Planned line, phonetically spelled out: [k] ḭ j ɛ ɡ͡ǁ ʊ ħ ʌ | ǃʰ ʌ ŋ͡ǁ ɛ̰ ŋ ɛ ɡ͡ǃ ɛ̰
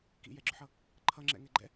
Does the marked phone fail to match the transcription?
no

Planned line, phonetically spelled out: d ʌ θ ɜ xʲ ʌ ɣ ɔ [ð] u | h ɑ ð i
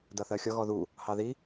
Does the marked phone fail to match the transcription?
no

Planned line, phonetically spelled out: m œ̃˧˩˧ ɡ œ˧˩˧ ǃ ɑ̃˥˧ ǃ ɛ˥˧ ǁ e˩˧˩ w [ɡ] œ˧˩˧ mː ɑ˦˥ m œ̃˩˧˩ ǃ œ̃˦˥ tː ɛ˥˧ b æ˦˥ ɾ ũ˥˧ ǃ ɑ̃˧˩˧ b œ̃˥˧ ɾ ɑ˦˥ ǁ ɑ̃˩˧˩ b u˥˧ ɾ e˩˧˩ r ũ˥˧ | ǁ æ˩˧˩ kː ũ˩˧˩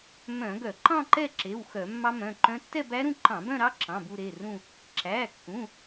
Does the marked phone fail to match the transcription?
yes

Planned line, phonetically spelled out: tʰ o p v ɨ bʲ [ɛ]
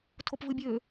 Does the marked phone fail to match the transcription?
yes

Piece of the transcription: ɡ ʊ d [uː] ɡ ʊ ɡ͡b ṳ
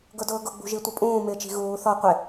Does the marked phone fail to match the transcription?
yes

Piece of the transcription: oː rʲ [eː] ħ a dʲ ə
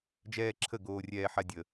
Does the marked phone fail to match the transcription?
yes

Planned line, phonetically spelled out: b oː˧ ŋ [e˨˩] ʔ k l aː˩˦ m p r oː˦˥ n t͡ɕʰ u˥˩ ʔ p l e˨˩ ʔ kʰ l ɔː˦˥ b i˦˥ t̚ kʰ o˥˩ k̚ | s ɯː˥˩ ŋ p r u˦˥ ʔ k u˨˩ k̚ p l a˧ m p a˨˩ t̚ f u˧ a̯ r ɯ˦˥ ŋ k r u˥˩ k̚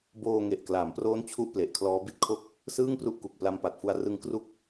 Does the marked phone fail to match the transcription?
no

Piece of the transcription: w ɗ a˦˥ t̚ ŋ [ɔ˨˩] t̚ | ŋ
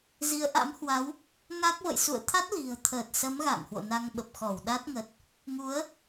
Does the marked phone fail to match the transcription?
yes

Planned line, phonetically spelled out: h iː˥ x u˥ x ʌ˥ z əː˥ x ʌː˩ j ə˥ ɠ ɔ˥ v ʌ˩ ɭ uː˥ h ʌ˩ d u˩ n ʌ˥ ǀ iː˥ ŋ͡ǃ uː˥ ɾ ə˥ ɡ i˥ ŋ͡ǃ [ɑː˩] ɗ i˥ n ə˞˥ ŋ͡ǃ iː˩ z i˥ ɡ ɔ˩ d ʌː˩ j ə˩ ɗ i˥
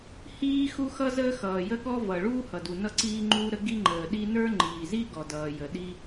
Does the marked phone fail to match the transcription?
yes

